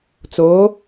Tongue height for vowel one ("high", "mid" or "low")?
mid